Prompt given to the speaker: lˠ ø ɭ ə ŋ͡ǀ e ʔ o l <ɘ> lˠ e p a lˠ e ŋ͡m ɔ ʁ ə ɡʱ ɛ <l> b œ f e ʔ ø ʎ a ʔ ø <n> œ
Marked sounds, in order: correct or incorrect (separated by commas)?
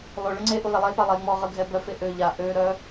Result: incorrect, incorrect, incorrect